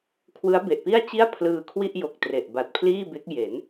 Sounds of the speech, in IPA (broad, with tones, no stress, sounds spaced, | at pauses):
kʰ w ɯ˦˥ a̯ b e˨˩ ʔ p i˥˩ a̯ t͡ɕ i˥˩ a̯ pʰ l ɯː˧ kʰ w i˥˩ ʔ j o˨˩ k̚ t r e˨˩ ʔ b a˨˩ t̚ pʰ l iː˥˩ b e˦˥ k̚ j e˩˦ n